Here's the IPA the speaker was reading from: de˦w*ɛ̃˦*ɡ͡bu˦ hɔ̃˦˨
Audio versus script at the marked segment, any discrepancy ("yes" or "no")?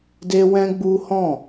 no